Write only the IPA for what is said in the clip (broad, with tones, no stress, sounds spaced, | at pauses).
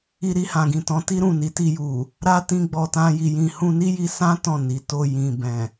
i˧ ɾ i˧ h ã˨ ɡ ĩ˨ t ɔ̃˨˦ t i˦ ɾ ũ˦˨ n i˨˦ t i˧ j u˨ | ɾ a˦ t ĩ˧ ɡ͡b ɔ˧ t ã˦ j i˧ j ĩ˧ h ũ˧ n i˦ j i˧ s ã˦ t ɔ̃˦˨ n i˨ t o˧ j ĩ˨ b ɛ̃˨